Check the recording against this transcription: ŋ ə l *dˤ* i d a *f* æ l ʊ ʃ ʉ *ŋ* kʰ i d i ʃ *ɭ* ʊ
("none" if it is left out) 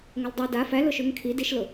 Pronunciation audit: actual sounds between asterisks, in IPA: dˤ, f, ŋ, l

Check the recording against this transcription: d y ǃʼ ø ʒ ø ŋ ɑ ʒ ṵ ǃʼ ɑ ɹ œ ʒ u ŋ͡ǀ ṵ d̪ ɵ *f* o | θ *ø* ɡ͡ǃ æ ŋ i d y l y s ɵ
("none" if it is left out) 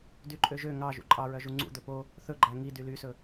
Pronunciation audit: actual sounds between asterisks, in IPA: p, ɵ

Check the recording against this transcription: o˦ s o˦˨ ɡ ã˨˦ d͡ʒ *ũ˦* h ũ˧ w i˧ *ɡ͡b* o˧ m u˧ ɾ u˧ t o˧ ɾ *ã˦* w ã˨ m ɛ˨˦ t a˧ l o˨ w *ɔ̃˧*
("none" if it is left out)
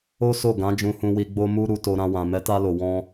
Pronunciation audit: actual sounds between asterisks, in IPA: ũ˧, ɡ͡b, ã˧, ɔ̃˧

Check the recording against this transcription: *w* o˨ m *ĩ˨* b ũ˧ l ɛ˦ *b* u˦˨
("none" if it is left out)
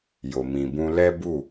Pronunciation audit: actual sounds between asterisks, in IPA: j, ĩ˨, b

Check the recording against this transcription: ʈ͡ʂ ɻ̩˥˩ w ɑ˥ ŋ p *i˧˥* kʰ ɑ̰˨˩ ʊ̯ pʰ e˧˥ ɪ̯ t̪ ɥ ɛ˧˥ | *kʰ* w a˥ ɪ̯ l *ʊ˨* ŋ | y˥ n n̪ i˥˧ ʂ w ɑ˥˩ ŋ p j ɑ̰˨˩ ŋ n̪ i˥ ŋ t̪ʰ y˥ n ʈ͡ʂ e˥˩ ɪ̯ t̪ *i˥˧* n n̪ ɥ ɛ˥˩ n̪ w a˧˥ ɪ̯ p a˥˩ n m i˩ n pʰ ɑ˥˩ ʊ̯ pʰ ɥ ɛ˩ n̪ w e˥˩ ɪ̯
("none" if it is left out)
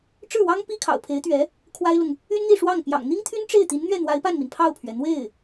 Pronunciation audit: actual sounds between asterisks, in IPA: i˥, kʰ, ʊ˨, i˧˥

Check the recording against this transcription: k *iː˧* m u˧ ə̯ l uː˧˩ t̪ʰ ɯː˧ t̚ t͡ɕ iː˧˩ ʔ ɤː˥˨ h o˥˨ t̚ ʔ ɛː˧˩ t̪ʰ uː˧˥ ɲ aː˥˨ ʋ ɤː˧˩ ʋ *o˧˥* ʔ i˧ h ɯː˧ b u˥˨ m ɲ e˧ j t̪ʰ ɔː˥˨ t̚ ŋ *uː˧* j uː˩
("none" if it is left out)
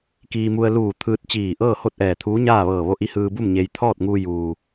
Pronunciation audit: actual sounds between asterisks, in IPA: iː˧, o˧, uː˧

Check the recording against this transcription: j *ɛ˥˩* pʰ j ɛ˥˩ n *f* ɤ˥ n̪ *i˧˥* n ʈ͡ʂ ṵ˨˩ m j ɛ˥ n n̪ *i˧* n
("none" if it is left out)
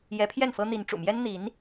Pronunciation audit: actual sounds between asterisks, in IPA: ɛ˧˥, f, i˧˥, i˧˥

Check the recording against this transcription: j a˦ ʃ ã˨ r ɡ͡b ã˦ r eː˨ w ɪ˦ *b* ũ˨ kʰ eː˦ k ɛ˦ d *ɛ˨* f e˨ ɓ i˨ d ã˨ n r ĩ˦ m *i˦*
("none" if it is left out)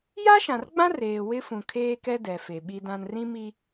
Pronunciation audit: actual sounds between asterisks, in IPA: f, ɛ˨, i˦

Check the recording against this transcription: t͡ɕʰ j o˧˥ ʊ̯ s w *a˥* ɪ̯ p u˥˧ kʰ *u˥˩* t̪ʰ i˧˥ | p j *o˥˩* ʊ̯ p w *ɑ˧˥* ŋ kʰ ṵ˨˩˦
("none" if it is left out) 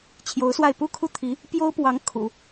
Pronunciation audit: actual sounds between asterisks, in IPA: a˥˧, u˥˩, o˥, ɑ˧˥

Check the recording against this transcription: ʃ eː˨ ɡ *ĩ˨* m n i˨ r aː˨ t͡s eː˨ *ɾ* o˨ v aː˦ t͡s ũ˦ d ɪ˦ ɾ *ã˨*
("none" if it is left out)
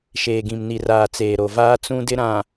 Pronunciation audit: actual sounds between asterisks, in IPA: ĩ˨, ɾ, ã˨

